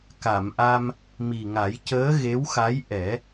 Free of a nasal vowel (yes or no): yes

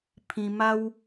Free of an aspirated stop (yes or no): no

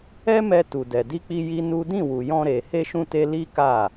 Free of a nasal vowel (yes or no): no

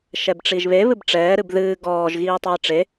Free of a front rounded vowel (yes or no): yes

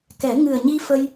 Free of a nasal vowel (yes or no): yes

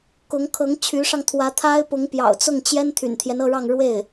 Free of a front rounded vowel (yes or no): no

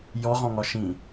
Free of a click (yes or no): yes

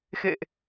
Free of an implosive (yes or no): yes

